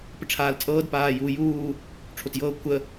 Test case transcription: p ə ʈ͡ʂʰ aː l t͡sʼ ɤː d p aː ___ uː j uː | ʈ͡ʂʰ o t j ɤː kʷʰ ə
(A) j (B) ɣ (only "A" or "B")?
A